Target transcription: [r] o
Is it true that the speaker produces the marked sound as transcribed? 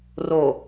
yes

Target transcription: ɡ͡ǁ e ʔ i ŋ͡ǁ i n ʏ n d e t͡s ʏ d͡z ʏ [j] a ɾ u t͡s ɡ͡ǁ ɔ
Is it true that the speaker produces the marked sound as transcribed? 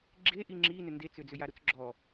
yes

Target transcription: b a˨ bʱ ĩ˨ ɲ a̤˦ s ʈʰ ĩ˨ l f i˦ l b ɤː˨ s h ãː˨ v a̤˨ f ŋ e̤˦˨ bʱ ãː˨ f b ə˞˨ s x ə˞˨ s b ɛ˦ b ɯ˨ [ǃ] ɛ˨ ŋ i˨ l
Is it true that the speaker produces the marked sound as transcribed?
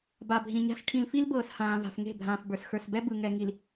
no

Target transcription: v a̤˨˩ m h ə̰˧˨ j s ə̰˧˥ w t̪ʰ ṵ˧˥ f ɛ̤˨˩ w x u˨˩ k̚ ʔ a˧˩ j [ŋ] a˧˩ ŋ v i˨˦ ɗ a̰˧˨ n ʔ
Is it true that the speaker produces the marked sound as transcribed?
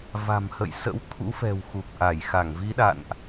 no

